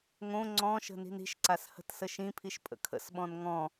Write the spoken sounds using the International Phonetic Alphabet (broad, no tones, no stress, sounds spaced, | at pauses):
ŋ õ ŋ͡ǀ ɔ̃ ʃ ə̤ n i̤ n i̤ ʃ ǀ a s h ə̤ t s ə ʃ ĩ pʰ i ʃ pʼ ə̰ kʰ ə̰ s ɓ ɔ̃ n ŋ ɔ̃